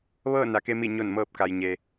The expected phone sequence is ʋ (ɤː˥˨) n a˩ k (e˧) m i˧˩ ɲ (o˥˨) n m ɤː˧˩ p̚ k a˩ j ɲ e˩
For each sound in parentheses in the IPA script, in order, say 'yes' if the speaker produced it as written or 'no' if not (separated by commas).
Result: yes, yes, no